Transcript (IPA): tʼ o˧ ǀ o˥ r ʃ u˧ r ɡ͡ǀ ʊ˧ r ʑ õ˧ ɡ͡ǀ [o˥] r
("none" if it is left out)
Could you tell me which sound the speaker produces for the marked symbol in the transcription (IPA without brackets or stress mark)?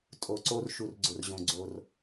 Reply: o˧